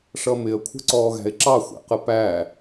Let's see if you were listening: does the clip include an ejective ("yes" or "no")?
no